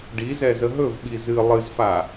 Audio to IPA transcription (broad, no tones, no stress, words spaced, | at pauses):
ɖizɛ zəɦɵvɓi zɨ lˠɨzfa